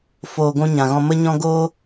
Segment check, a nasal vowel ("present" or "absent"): present